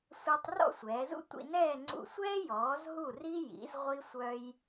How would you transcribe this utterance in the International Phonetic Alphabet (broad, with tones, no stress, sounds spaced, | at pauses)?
sʷ a˧ tˤ r ɔ̰˥˧ sʷ ɛː˩˧ z ṵ˥ tʷ ḭ˧ n ɛː˥˧ ŋ͡ǀ ṵ˧˩ sʷ ɛː˥ j ɔː˩˧ z ɦ u˧˩ r i˧ j ḭ˩˧ z ʁʷ i˧ sʷ œ˧ j